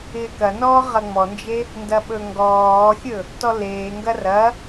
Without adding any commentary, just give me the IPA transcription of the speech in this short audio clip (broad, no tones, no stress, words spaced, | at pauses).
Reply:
ɪːkɐnɔː ʁɐŋ͡mɔnd͡ʒe | ndɐɓɵŋɡɔːxʲɵ | tɔleːŋɡɐ rɐ